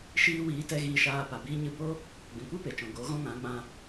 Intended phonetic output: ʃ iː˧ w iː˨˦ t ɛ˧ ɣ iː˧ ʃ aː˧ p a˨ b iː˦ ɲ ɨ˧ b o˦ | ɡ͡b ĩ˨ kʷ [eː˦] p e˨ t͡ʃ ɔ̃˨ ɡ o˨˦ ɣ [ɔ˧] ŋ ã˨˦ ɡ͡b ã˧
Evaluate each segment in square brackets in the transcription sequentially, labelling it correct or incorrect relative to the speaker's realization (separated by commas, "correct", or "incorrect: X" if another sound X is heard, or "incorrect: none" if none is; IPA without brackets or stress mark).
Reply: incorrect: iː˦, incorrect: ɔ̃˧